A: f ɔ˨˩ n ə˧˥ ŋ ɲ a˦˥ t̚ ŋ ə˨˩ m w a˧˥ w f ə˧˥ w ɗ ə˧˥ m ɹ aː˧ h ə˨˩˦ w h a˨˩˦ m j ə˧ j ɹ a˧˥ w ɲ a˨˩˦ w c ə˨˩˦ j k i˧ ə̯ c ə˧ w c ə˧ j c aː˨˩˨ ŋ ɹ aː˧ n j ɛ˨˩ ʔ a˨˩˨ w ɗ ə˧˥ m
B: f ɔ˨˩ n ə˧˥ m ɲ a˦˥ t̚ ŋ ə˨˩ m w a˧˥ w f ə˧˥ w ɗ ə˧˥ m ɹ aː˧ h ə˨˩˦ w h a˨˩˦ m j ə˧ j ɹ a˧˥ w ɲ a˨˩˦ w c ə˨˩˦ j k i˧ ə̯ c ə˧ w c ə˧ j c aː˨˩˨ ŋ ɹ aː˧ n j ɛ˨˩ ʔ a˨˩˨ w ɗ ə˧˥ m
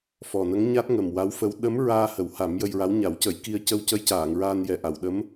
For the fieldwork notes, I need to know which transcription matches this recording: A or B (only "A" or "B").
A